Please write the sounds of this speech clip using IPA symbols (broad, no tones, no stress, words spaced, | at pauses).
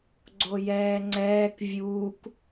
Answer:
ɡ͡ǀojɛːŋ͡ǀɛːk vʲuːk